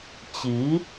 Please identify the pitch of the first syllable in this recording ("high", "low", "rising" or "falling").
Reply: rising